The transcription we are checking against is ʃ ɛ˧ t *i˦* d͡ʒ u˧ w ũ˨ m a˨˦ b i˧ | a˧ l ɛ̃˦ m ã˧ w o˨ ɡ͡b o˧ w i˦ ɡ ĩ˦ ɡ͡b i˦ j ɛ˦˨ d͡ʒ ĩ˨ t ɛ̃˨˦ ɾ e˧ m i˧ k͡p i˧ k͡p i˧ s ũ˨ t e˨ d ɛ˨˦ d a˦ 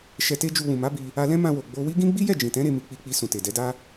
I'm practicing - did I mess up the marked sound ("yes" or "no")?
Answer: yes